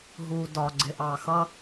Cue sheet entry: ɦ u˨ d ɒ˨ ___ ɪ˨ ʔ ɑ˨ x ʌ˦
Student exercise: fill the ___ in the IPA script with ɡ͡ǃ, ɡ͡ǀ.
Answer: ɡ͡ǀ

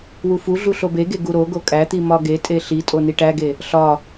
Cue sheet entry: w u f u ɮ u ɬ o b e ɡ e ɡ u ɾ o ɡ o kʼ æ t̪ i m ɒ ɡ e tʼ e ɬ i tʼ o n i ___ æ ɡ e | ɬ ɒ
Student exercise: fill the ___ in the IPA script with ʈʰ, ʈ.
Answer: ʈ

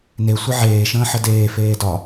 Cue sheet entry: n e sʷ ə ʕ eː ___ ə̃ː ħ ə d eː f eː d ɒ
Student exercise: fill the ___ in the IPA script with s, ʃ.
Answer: ʃ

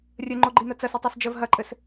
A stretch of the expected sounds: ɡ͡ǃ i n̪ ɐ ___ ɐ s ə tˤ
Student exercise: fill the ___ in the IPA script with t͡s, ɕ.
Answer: t͡s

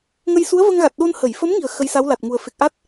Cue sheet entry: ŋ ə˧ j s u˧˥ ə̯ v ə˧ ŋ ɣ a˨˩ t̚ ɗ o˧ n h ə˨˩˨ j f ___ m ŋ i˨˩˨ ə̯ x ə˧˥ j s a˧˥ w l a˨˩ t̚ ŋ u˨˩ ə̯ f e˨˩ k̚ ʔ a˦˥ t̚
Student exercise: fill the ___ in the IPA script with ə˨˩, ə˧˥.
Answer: ə˧˥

